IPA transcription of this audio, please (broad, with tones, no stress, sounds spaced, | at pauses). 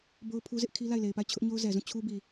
b o˦ ʊ̯ pʰ u˦ z ɪ˦ ʔ kʰ i˦ l a˦˨ ɪ̯ l e˨ ɪ̯ p a˦˨ ɪ̯ t͡ɕʰ ʊ˦ ʔ ɲ o˦ ʊ̯ z ɛ˨ z ũ˦˨ t͡ɕʰ u˦ b i˨